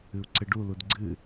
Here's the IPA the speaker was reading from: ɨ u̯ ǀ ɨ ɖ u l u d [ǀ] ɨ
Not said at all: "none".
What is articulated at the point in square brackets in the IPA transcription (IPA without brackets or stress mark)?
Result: ɡ͡ǀ